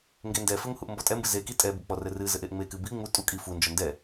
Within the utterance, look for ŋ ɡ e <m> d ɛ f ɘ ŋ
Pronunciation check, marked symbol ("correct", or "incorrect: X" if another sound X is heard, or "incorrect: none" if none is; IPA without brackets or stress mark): incorrect: n